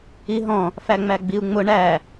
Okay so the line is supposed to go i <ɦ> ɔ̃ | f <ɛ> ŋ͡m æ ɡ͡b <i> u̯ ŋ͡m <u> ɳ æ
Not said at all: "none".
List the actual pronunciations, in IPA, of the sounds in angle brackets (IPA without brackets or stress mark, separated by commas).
ɦ, æ, i, ʊ